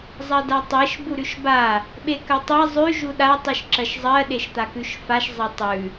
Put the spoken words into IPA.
zˤ ɜ d a tˤ e ʃ b u ɾ ʉ ʃ b a | ɓ e k ɜ tˤ e zˤ ʉ ʒ u ɗ a tˤ ʉ ʃ ǁ ɜ ʃ zˤ ɜ ɗ e ʃ t̪ a k ʉ ʃ f a ʃ zˤ ɜ tˤ ʉ

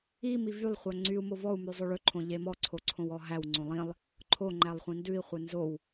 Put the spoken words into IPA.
i m i v y lˠ χʷ æ ŋ͡ǀ y u̯ m o v ɔ u̯ m ʉ zˤ o ɭ ɵ ǃʰ õ ʎ e m ɔ ǀʰ o ǀʰ õ w ɔ ɦ æ w ŋ͡ǀ õ lˠ ĩ lˠ | ǃʰ o ŋ͡ǃ æ lˠ χʷ ĩ n d ʉ i̯ χʷ e n z o w

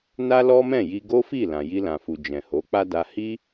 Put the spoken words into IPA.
n a˦ l ɔ˦ m ɛ̃˦˨ j i˧ ɡ o˦ f i˦˨ l ã˨ j i˧ l ã˨ f u˨ d͡ʒ ɛ̃˨ h o˨˦ k͡p a˦ d a˧ h i˦

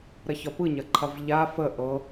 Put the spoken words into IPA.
ɾ ɐ ç ɒ p ɯ ɲ ɐ ǃʰ ɐ v ʎ a f ə ʔ ɤ

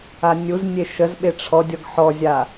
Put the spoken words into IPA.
a nʲ u z nʲ e ʃ ə z ɓ e ʈ͡ʂʰ ɔ dʲ ɔ ɡ ħ ɔ zʲ a

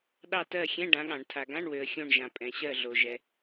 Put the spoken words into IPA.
ɗ ɑ˦˨ t ɜ˦˨ xʲ ɛ̃˧˥˧ ɖ ã˨˥ ɠ ɑ̃˨˩˦ ɳ tʰ a˨ ɡ ã˧˥˧ ɳ w ø˨ ə̯ xʲ õ˦˨ ɳ ʒ ã˨ pʼ ɛ̃˨ ɕ ɜ˦˨ ɮ o˨ ʒ ɛ˨

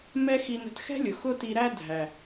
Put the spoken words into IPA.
m ɛ˦ x i˧ n ə̤˧ t x ɛ̤˦ lʲ ʊ˨ x ʊ˦ t i˧ ɾ æ˦ dʱ æ˨

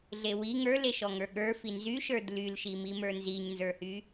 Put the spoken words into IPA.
ɮ e w i ŋ ə˞ l e ʃ ɔ ŋ ə˞ ɠ ə˞ f i n z y ʃ ə˞ d l y l ʃ i m i m ə˞ n z i ɲ n z ə˞ h y

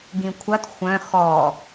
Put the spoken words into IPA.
ɡ ĩ kʷʰ ɐ t xʷ œ̃ x ɔ

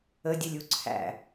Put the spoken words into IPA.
ə dʲ ə lʲ u ǀʰ æ̰

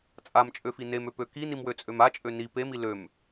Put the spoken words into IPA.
t͡sʼ a m t͡ʃʼ ø f i n e m ø p ø k i n i m w ø t͡sʼ ø m a t͡ʃʼ ø n i p e m i l ø m

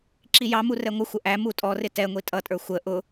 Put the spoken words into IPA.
ǁ i j ɑ m u r ɛ ŋʷ ə xʷ ə ʔ æ m u tʼ ɔ r ɪ t ɛ ŋʷ i tʼ ʌ tʼ ə˞ xʷ ə ʔ ʊ

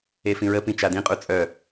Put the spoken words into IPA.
e f ĩ ɹ ə p ĩ t͡ʃ a d ĩ qʼ u t͡sʼ œ

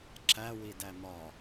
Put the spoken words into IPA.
ǁ æ w i d æ m ɒ

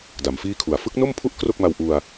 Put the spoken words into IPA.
d a˩˦ m f iː˥˩ kʰ u˨˩ a̯ f ɯ˦˥ k̚ n o˥˩ m pʰ u˥˩ ʔ k r o˥˩ k̚ m a˧ w ʔ u˧ a̯

